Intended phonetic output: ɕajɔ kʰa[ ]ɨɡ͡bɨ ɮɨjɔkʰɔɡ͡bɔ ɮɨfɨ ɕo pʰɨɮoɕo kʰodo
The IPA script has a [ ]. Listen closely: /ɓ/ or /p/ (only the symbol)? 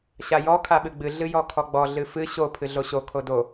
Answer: ɓ